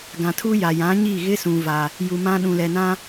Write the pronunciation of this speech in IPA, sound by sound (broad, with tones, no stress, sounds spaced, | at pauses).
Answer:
ɡ ã˨ tʰ u˦ j a˨ j ã˨˦ ɲ i˦˨ ɣ ɪ˦ s ũ˦ v a˦ | j u˨ m ã˦ ɗ ũ˨ l ɛ˨ n ã˦